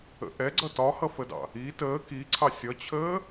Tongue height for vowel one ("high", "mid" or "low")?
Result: mid